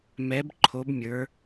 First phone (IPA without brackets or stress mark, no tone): m